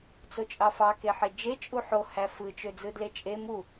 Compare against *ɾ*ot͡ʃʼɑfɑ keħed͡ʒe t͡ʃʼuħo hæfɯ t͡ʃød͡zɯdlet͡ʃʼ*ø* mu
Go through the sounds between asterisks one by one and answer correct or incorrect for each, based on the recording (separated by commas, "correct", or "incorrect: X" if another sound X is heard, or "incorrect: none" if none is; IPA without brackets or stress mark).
incorrect: t͡s, incorrect: e